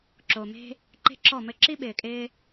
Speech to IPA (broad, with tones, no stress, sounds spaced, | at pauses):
ǁ o˨ m e̤˦ | ǃ e̤˦ ǁ ɔ˦˨ m ɘ˦ ǁ i˦ ɓ ɪː˨ kʼ ɪː˦